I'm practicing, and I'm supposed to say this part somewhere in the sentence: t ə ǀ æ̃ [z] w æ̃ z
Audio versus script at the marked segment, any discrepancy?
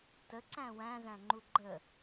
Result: yes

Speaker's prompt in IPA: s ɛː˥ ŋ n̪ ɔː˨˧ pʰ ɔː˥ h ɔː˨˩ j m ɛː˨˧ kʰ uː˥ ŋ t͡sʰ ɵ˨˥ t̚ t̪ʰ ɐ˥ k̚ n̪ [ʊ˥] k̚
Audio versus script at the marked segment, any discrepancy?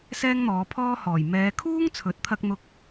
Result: no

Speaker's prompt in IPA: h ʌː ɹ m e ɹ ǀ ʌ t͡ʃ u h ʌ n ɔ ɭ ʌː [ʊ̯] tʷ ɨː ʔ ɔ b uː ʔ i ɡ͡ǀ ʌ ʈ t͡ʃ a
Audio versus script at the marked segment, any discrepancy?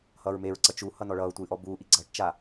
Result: no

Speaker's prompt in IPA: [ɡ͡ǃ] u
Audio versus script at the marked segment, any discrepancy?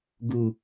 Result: yes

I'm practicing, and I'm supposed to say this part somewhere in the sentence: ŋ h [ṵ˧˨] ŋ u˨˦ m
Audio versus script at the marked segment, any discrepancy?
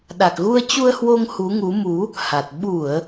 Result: yes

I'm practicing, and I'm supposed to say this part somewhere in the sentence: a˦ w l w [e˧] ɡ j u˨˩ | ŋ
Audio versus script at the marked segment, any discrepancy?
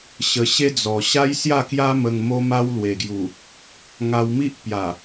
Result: yes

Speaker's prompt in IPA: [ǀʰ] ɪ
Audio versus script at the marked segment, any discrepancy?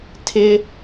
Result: yes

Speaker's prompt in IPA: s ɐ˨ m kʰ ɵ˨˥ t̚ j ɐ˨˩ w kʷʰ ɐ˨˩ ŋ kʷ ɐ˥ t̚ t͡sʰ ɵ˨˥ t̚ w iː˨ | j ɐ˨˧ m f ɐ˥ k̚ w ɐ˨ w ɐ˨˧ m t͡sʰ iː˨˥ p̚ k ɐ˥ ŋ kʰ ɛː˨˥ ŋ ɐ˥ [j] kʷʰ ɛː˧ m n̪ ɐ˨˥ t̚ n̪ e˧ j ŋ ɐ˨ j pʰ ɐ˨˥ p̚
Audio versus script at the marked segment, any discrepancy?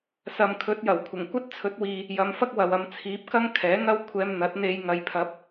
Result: yes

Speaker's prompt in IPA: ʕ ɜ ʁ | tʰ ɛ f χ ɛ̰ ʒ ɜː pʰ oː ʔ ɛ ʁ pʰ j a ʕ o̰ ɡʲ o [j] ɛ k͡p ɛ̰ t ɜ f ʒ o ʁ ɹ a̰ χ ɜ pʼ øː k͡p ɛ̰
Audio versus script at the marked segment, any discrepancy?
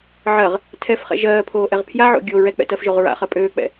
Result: yes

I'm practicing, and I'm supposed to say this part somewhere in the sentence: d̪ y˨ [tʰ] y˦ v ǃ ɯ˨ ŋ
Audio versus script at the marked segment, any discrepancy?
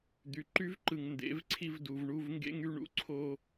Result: yes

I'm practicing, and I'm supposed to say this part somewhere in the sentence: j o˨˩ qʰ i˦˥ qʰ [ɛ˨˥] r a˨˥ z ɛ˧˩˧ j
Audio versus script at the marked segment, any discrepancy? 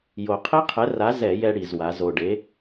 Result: no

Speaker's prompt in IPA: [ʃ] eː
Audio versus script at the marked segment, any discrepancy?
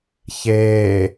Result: yes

